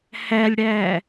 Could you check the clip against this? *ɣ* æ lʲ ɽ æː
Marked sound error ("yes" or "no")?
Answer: yes